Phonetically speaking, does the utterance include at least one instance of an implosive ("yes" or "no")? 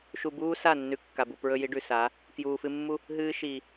no